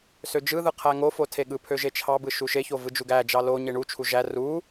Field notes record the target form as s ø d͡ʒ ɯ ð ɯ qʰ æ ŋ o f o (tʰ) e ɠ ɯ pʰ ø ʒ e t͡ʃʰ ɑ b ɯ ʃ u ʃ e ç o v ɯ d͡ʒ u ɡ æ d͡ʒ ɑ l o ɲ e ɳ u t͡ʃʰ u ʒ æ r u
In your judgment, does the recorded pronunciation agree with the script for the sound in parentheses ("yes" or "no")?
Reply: yes